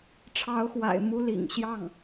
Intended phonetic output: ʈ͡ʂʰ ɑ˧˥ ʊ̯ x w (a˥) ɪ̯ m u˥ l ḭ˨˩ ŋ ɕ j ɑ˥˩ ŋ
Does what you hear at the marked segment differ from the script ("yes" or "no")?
yes